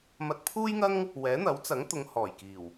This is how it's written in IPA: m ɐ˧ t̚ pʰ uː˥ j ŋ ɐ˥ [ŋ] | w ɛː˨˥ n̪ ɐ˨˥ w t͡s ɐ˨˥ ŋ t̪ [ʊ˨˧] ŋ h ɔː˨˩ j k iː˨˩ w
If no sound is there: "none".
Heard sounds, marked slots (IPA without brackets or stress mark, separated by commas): ŋ, ʊ˨˧